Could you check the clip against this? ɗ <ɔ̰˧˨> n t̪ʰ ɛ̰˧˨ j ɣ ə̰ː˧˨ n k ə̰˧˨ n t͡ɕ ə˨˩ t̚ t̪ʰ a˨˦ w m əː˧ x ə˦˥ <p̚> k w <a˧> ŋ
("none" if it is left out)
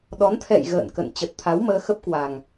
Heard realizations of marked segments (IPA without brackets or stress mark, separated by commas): ɔ˨˦, p̚, a˨˩